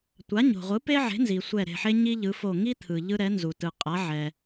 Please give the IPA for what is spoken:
tʷ a˩˥ ɲ o̤˩ ʁʷ ɯ˩˥ p e˦ ʕ e̤˩˥ n z i˩ sʷ ɛ˧˩ ɾ e̤˧˩ ħ e˦ ɲ i˦ ʎ ɯ˩˧ f o˧˩ ŋ i˦ t̪ʰ ɯ˩ ʎ ɯ˦ ɾ ɛ˩˥ n z u˩ t ɯ˩ qʼ a˩˥ ʕ ɛ˩

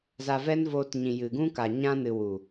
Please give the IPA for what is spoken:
z a˧ v ɛ˦ n v oː˧ t ɲ ĩ˨ j ɨ˨ ɡ ũ˦ k a˨ ɲ ã˧ n ɨ˨ w u˨

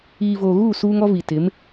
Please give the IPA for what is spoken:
iː˨ v oː˨ ɣ uː˦˨ s uː˦ ŋ ɔ˦ v i˨ t ɪ˨˦ m

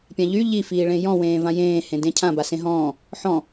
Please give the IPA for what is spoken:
pʲ ã ʎ y ʎ i f iː ɭ ẽ j ɔ̃ w ẽː v ã j ẽː h ẽ d ẽ cʰ ã b a s ẽ ɦ ɔ̃ː | ħ ɔ̃

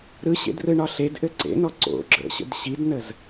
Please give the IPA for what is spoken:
ɾ ɯ ɕ ḛ d r ɯ ɳ ɒ ɬ e d ʔ ɘ ǀ ḛ n ɔ ǀ o̰ ɡ͡ǁ ə̰ ɕ ə̰ d ɕ i d n ə z

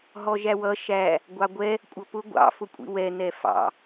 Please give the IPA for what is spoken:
ɦ ɔ ʒ æ w ʌ ʃ æ | ɡʷ ɑ ɡʷ ɛ | kʷʼ ʌ p ʊ ɡʷ ɑ̰ f ʊ kʷʼ ḭ w ɛ n ɛ f ɑ̰

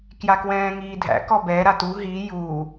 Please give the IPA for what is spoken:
k j a k w ɛ̃ː ŋ iː dʱ æ̰ k ɔ b ɛ ɾ a t u ɦ i j u

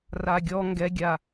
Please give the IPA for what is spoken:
r a ɡʲ ɔ ŋ ɡ ɛ ɡʲ a

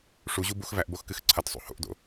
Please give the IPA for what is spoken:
ʂ u ʑ u b u x v æ ʔ b o x k ɨ x ǀʰ ɐ t sˤ ṵ h o̰ ʔ d o̰

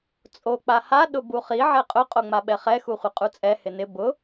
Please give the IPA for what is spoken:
t͡sʼ o k͡p a h a ɗ ʊ b u χ i ʕ ɛ qʼ ʊ qʼ o ŋ͡m a ɓ ɛ χ ɛ x u χʷ ɪ qʼ u t͡sʼ ɛ h ɪ n ɪ b ʊ

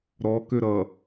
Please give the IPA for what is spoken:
ɾ ɔ k ø ɾ ʌ

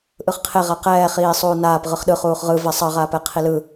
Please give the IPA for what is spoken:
ʔ ɯ χ qʰ e ʁ a q ɛː χ iː sˤ uː n aː p ʁ ɯ χ ɗ ɯ χ uː χ ʁ ɯ v ɛ sˤ ʌ ʁ aː p ɛ qʰ i l ɯ

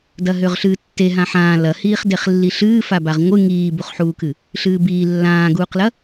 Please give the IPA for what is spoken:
d ɐ ɦ ø ʁ ɬ ɨː tː e ɦ ã ħ ãː l ɐ h iː χ d e χ lː i ɬ ɨː f a b a ʁ ŋʷ ɨ ŋ iː b u χ ħ uː k ɨ | ɬ ɨː b iː lː ãː ɡ uː q l ɐ

